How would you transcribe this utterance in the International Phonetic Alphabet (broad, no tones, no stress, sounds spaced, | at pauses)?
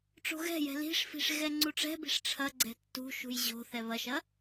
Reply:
ʈ͡ʂ o̤ ɣ ɛ̤ j ɛ̤ l i̤ ʂ f i̤ ʂ ɣ ɛ ŋ͡ǀ u ʈ͡ʂ ɛ̤ b i̤ ʂ ʈ͡ʂʰ ɐ ɡ͡ǀ ɛ̤ tː ṳ ʃ ṳ j ʑ o̤ θ ɛ β ɐ ʃ ɐ